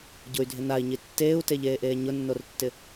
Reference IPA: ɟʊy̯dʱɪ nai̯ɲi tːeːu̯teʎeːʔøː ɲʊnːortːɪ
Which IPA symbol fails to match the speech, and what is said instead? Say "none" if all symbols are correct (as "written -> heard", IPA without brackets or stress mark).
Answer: øː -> eː